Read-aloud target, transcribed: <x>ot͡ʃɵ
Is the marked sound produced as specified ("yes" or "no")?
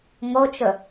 no